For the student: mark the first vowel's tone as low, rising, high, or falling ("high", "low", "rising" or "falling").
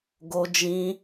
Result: high